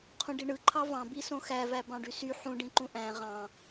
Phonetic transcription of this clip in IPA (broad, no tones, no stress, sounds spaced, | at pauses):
qʰ ũ ɖ i ɳ ɯ ǃʰ ɑ v ɑ̃ b i s õ x æ v æ b ɑ̃ ɖ y s y ħ ũ ɖ ĩ ǃ ũ ʔ æ̃ ʁ ɑ̃